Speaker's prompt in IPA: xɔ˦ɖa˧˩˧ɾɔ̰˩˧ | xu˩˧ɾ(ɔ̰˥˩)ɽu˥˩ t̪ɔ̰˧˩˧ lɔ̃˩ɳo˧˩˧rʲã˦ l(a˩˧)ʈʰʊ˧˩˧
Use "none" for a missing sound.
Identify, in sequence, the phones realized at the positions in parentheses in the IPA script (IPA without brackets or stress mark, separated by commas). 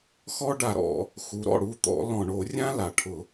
ɔ̰˥˩, a˩